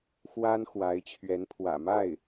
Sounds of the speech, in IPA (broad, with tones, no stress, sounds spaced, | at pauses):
x w a˥ n x w a˧˥ ɪ̯ t͡ɕʰ ɥ ɛ˧˥ n pʰ w ä̰˨˩ m a˥˩ ɪ̯